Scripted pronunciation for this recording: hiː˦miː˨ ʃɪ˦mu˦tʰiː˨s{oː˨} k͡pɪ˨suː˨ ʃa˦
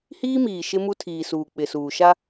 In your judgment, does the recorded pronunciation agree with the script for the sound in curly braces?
no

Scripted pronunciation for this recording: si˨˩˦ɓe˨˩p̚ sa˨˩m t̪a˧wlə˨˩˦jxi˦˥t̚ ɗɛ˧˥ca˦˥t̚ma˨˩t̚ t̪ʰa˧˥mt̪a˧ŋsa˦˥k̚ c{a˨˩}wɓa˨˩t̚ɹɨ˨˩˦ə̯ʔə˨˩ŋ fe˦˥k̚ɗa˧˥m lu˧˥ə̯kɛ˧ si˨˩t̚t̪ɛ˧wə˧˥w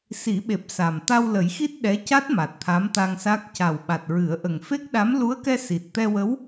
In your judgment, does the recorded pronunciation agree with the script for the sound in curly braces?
yes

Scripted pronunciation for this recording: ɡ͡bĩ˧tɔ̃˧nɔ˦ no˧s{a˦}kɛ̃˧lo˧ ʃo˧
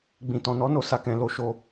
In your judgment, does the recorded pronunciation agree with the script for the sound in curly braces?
no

